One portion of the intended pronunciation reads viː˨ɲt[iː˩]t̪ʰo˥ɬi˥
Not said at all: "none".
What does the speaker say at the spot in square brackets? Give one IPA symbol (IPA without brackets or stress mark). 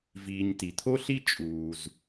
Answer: i˩